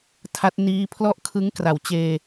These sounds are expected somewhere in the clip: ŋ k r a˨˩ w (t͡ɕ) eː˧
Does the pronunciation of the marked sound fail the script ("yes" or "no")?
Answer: no